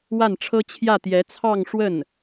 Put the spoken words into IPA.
w a˥˩ n ʈ͡ʂʰ ɤ˥ t͡ɕʰ j ä˥˩ t̪ j ɛ˧˥ t͡sʰ ɑ˥˧ ŋ ʂ w ə˥˩ n

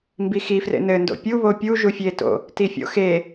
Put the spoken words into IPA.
m b i x i f r ḛ n ɘ n d o̰ pʲ u β o pʲ u ʒ u fʲ e t o̰ | t i fʲ o̰ x e

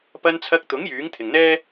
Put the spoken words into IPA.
p ɐ˧ n t͡sʰ ɐ˧ k̚ t̪ ʊ˨˥ ŋ j yː˨˥ ŋ t̪ʰ ɪ˨ ŋ n̪ ɛː˥

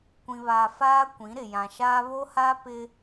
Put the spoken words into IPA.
kʷ ĩ˨ β aː˨ f aː˦ kʷ ĩ˨˦ ɾ ɪ˨ j ã˨ ʃ aː˦ β o˦ h a˦ p ɪ˦

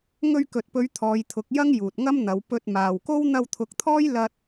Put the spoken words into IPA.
ŋ ɵ˧ ɥ k ɵ˨ t̚ p ɵ˨˧ ɥ t̪ʰ ɔː˨˧ j t̪ʰ ʊ˨˥ k̚ j ɐ˥ ŋ j uː˨ t̚ ŋ ɐ˥ m n̪ ɐ˨˧ w p ɵ˧ t̚ m aː˨ w k o˥ w n̪ ɐ˧ w t̪ʰ ʊ˨˥ k̚ t̪ʰ ɔː˥ j l ɐ˥ t̚

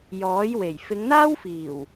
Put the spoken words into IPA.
j ɔː˨˥ j w e˨˩ j f ɪ˨˧ ŋ n̪ aː˥ w f iː˨˩ w

